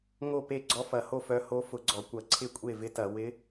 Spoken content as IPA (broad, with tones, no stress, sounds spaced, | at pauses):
ŋ o˥˩ p e˥˩ ɡ͡ǀ ɔ˧˥ f ɐ˧˩˧ h o˥˩ f œ˧˥ h o˧˥ f ʊ˧˩˧ ɡ͡ǀ ɔ˧˩˧ kʷ ɐ˧˩˧ ǀʰ ɪ˥˩ kʷʼ e˥˩ v ɪ˧˥ t ɐ˧˩˧ w ɪ˧˥